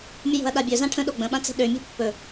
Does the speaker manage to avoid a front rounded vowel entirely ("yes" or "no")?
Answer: no